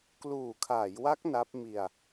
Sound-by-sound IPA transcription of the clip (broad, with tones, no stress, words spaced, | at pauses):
kluː˨˩kʰaː˩˦jwa˦˥k̚ na˦˥p̚mi˧a̯